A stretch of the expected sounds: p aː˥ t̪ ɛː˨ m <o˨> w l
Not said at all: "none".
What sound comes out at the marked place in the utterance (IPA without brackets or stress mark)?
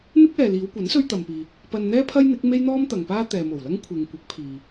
o˨˩